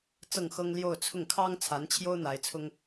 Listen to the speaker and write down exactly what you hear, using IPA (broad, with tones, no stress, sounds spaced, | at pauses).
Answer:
t͡s ɤ˥˩ ŋ x ɤ˥ ŋ l j o˥˧ ʊ̯ t͡sʰ ʊ˥˩ ŋ kʰ ɑ˥ ŋ t͡sʰ a˧˥ n t͡ɕʰ j o˥ ʊ̯ n̪ a˧˥ ɪ̯ t͡sʰ ʊ˥ ŋ